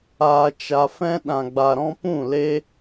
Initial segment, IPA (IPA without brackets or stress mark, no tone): aː